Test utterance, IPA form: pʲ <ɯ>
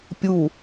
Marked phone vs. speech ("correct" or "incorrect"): incorrect